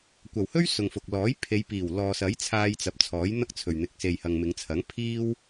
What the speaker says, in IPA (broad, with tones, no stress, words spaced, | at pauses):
kʷɐ˨˩whɵ˥ɥ sʊ˨ŋfʊ˨k̚lɔː˨˥j pʰe˨˧jpiː˨˩w lɔː˨sɐ˨˥j t͡sʰaː˧jt͡sɐ˨˥p̚ t͡sʰɔː˨˥jn̪ɐ˥k̚ t͡sʰɵ˨ɥn̪ɪ˨k̚ se˨jhɐ˨ŋmɪ˨˧ŋt͡sʰɐ˨˥ŋ pʰiː˥w